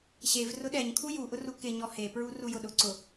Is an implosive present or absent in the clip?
present